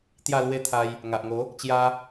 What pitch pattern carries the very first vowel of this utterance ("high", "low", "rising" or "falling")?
falling